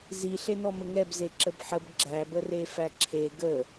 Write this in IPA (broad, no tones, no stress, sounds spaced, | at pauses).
z i ɬ e n ɔ m ə ŋ ɛ b z e ǁ ə b ħ ə b ɡ͡ǁ æ b ə r e f æ ǁʰ e ɡ ə